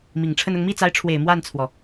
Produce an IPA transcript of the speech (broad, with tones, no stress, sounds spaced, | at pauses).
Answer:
m i˨˩ ŋ ʈ͡ʂʰ ə˥˧ n ʊ˥˧ ŋ m i˥˩ t͡s a˧˥ ɪ̯ ʈ͡ʂʰ w e˨˩ ɪ̯ m w a˥˩ n t͡sʰ w ɔ˩